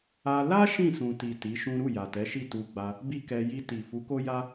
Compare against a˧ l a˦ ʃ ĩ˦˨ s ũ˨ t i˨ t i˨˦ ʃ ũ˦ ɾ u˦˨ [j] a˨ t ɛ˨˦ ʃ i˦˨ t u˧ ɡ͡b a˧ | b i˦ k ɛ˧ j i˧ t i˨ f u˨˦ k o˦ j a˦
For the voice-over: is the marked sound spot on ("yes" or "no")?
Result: yes